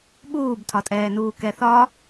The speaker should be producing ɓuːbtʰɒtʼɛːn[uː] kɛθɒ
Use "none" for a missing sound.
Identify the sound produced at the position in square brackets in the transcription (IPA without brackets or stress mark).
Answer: uː